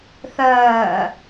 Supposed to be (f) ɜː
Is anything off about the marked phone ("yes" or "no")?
yes